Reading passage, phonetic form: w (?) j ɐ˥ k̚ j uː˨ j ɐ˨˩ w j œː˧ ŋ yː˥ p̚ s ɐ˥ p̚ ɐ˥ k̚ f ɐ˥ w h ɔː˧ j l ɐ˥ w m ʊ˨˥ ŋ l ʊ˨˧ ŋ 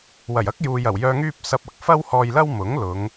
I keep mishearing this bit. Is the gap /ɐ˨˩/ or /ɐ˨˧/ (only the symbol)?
ɐ˨˩